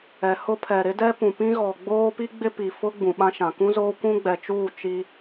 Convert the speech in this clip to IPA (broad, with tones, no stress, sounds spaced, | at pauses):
ɛ˨ h ʊ˦ pʰ ɛ˨ ɾ ɪ˦ d ɛ˦ p ũ˨ p ĩ˦ ɣ ɔ˨ ɡ͡b oː˦ p i˦ ɡ͡b ɪ˦ p i˨ f ʊ˦ ɡ͡b ũ˨ ɓ ã˦ ʃ ã˨ k ũ˦ z oː˦ kʷ ũ˦ ɡ͡b ɛ˨ t͡ʃ uː˦˨ t͡ʃ i˦